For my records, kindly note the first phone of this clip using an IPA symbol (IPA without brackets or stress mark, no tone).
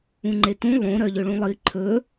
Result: ũ